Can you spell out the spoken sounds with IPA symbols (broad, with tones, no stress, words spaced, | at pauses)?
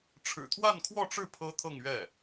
ʈ͡ʂʰɻ̩˨˩ t̪ʰwa˥˧nkʰwɔ˥˧ʈ͡ʂɻ̩˥˩ pʰɤ˥t̪ʰɤ˥˧ŋɥɛ˥˩